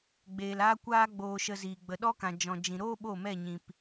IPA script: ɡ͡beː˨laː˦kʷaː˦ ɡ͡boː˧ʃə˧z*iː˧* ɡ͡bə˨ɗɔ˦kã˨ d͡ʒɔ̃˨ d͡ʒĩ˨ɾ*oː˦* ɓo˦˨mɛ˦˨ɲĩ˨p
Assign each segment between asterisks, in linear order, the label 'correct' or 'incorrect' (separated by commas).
incorrect, correct